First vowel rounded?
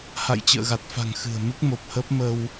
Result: no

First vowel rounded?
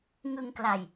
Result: no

